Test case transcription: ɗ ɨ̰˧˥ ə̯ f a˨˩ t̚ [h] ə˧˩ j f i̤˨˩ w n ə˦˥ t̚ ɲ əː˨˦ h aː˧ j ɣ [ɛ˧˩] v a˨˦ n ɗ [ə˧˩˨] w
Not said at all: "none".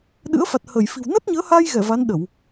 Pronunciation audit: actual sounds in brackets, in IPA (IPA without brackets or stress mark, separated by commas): h, ɛ˧˩, ə˧˩˨